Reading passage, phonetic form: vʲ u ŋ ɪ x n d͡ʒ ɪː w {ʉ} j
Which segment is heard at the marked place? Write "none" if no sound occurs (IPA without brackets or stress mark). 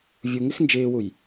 u